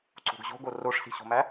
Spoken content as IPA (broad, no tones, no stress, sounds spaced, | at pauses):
ǀ o̤ ɡ ʑ o̤ ɡ o r o ʂ s i̤ ɕ o̤ m æ